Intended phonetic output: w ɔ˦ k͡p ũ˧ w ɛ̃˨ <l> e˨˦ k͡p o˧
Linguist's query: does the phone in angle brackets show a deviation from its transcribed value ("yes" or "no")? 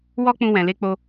no